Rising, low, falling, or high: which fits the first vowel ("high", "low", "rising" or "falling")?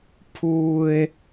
high